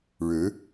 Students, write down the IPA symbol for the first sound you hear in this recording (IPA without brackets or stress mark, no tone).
ɻ